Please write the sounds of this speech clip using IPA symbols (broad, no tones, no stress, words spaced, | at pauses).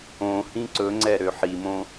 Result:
õhĩ ǀɵŋ͡ǀɛ ɾøħimõ